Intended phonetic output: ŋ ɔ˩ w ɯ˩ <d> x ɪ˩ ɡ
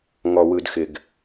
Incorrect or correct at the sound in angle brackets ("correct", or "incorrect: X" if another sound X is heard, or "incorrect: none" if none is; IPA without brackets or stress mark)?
correct